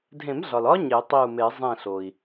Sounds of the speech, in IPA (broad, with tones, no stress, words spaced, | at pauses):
dʱẽ˨˩˦mɮɒ˩l ɒ˦˥ ɲe˨˩˦tˤi˧˩u̯me˨˩˦ zˤẽ˧˩ɬo˩i̯